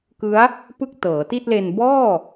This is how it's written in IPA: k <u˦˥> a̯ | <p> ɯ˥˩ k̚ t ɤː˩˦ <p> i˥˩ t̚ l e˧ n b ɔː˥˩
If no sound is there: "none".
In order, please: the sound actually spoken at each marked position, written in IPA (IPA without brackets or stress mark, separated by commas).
ɯ˦˥, p, t